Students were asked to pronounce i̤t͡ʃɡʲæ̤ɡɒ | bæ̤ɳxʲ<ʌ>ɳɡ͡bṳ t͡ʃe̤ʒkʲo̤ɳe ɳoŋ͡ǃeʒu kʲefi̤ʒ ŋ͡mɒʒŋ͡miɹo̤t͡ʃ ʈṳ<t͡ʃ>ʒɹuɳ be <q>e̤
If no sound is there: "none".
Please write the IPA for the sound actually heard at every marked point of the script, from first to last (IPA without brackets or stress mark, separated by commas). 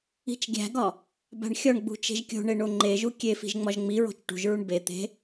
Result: ɒ, none, t̪